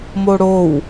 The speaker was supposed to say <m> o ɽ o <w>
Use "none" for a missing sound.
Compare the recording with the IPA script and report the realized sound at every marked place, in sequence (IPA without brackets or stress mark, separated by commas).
m, w